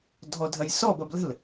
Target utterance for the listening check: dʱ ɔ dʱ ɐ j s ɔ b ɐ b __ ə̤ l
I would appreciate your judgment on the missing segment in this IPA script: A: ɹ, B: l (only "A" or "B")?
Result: B